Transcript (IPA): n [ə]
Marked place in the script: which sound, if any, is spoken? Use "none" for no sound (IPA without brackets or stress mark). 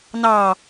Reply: ɑ